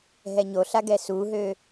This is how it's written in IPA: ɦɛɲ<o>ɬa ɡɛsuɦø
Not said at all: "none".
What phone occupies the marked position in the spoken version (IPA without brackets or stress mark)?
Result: o